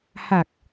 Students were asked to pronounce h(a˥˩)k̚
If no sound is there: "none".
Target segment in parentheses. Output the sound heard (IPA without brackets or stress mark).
a˨˩